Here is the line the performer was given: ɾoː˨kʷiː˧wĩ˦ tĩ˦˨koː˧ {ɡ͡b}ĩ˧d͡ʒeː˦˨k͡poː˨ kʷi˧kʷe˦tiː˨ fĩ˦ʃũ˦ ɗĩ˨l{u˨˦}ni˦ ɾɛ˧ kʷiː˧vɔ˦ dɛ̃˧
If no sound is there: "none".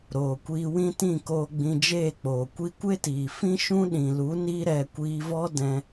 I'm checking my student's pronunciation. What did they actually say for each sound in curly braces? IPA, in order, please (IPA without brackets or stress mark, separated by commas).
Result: ɡ͡b, u˨˦